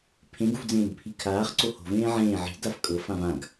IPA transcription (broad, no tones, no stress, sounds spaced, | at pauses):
pʰ ẽ ɡ ṳ v d͡z ẽː ɡ pʰ i kʰ aː χ ǀ o h o̤ v ẽː ʕ ẽː ʕ i̤ d a f kʼ ɤ f ã v ã ɡ